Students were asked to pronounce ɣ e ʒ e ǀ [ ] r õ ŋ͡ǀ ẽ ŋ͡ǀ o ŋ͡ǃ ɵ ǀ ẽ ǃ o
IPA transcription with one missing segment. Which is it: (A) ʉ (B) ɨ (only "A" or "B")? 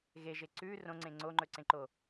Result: A